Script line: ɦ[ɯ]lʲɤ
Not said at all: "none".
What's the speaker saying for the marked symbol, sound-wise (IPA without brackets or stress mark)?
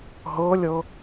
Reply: ɤ